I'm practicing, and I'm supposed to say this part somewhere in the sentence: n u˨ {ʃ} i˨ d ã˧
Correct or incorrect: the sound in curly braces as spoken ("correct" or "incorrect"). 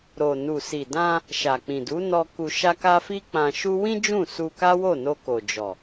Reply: incorrect